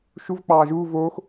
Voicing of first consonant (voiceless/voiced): voiceless